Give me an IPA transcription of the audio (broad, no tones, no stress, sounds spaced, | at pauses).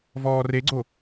v ɔː r e ɡ͡ǀ o